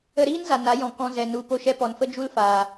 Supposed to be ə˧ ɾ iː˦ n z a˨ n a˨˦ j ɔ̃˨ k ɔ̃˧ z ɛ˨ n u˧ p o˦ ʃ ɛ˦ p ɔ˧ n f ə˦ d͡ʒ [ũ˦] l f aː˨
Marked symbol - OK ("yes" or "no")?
no